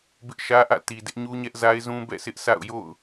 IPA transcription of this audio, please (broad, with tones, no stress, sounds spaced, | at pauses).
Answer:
b ɪ˦ ʔ ʃ ä˦ ʔ ä̰˦˨ t i˨ d ɪ˦ ʔ ɲ u˦ ɲ ɛ˦ ʔ z a˦ ɪ̯ z ũ˦ b ɛ̰˦˨ sʰ ɪ˦ ʔ sʰ a̰˦˨ ʊ̯ j o̰˦˨ ʊ̯